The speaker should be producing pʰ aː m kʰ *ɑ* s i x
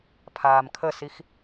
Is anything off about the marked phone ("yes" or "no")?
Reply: yes